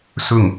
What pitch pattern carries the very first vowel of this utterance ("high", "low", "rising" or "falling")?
falling